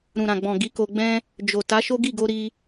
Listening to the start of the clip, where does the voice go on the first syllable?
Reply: low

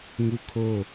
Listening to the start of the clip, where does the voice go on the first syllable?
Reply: falling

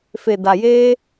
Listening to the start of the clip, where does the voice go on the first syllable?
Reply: low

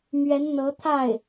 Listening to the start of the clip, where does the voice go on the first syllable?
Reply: rising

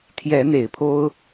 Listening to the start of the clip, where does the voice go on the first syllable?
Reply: rising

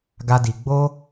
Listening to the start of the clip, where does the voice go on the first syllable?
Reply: high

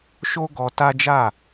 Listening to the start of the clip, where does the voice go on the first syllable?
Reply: high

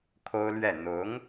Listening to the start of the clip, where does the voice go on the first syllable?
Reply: high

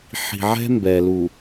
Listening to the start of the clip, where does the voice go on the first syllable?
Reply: low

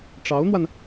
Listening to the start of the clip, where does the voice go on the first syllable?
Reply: rising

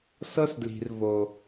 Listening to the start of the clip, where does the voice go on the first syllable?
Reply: high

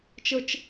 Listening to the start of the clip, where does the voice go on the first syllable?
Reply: high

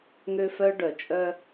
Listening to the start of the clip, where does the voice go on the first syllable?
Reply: high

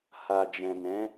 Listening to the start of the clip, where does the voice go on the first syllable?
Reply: low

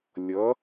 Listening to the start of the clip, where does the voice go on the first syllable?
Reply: rising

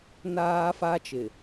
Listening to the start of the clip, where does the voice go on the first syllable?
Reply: high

